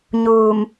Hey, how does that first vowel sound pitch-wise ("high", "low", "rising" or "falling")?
low